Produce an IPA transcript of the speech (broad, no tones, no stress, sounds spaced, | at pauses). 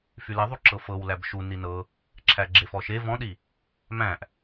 f y l e ðˤ u ǁ ɤ f ɤ w l æ b ʃ u n i n ɤ | ǁʰ æ ɡ͡ǁ e f ɔ ʃ e v ɔ̃ ɗ i | m æ̃ ʔ